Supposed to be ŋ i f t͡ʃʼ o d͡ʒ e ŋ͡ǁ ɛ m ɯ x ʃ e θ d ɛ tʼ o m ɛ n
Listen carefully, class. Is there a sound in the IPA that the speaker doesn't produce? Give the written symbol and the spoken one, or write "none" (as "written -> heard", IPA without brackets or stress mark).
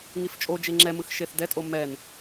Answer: none